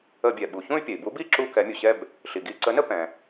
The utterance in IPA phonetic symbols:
ə˧˩˧bʲɛ˩ɓu˩ çũ˥˧y̯pʲɛ˩i̯ bu˨˥bi˥˧ ǁu˥˧kɛ˨˥mʲu˩ɕɛ˥˧b | ɬi˩ɡi˧˩˧ǀə˨˥nə˥˧ pɛ̃˩

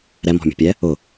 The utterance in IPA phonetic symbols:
ɾɛmɔ̤mʲṳpʲɛ | ʊ

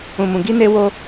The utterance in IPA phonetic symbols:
ũ˨mũ˨ ɡi˧ne˧ wo˦

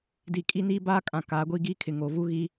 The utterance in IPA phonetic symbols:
di˨kʼi˦niː˦ baː˦kʼã˨ kaː˨ɡʷiː˦ɡiː˦kʰɪ˨ ŋo˨ vu˦ɣi˦

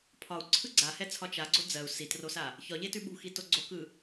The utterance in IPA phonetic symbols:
pʰɒu̯ǀʰɯ ɡ͡ǀahɛt͡sʰɒ t͡ʃaɡ͡ǀo d͡zɜu̯ sitrosa | çɒʎetʉ ɓṳxito ɡ͡ǀokɯ

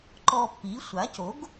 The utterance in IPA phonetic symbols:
ǃɔ˧pːi˩˥ sʷa˩˥co˩˥ɡ

